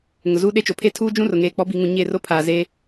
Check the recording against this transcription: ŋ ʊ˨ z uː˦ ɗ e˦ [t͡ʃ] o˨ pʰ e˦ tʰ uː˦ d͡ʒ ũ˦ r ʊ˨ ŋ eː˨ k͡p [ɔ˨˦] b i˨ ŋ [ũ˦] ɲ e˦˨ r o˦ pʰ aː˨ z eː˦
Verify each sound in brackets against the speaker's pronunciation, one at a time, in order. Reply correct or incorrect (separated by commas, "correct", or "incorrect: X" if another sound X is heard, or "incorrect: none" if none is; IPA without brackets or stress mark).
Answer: correct, correct, incorrect: ũ˨